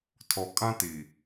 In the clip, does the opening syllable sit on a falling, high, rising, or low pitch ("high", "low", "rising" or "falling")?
low